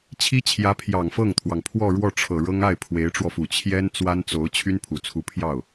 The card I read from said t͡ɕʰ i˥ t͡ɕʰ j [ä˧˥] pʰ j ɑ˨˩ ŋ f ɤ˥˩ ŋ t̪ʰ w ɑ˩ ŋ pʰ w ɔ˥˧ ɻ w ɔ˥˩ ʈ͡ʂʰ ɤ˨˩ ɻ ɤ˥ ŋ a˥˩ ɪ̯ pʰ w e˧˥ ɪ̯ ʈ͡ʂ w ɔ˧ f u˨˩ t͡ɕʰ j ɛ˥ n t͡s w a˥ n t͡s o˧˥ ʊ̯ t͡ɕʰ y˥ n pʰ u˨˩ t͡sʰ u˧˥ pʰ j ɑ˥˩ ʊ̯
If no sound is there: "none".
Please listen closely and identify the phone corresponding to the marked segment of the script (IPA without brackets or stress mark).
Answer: ä˧˥